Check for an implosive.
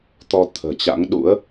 present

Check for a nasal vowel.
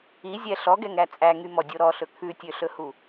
absent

